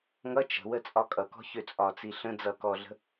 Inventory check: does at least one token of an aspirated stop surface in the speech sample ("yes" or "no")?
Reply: no